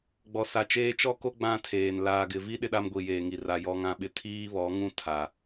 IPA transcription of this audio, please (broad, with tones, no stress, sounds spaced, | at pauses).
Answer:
ɡ͡b ɔ˨ s a˨ t͡ʃ eː˦ t͡ʃ ɔ˦ k o˦ ɡ͡b ã˦ tʰ eː˨ n l aː˨ ɡ ɪ˨ v i˦ ɗ ɪ˦ ɗ a˦ m ɡʷ i˨ j eː˨ ŋ i˨ r a˨ j ɔ˦ ŋ ã˦ ɓ ɪ˦ tʰ iː˦ β ɔ˨˦ ŋ ũ˦ tʰ a˨